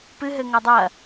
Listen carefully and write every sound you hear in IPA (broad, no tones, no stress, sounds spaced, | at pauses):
p ɨ ɦ ɘ ŋ ɐ dˤ ɐ